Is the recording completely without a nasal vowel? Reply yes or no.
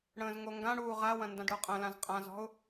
no